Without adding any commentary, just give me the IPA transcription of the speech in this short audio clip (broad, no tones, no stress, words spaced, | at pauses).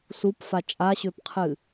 supfa t͡ʃʼaɕʏːpqʰɨː